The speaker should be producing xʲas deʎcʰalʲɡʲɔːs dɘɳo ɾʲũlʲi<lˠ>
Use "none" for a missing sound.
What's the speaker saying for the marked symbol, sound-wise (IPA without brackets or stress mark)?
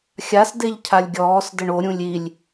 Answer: lʲ